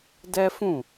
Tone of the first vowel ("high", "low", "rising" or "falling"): high